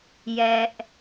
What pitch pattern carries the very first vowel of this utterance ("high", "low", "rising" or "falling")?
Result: high